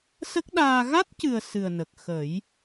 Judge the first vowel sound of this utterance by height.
mid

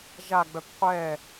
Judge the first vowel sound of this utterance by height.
low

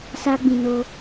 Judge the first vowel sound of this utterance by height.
low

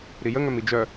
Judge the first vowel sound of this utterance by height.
high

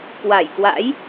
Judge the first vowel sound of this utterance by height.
low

